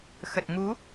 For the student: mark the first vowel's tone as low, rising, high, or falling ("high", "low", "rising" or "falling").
low